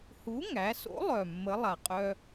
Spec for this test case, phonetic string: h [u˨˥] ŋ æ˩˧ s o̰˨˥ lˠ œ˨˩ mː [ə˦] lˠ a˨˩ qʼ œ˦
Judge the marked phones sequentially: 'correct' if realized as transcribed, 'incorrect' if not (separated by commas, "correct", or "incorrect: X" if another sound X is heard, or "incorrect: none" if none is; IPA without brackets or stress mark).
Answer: correct, incorrect: ə˨˥